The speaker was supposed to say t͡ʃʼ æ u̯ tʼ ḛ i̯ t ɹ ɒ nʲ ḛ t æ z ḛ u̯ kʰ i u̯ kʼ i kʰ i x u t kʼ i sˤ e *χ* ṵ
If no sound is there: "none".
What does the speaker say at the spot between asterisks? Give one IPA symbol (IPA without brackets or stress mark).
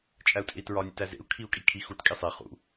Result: χ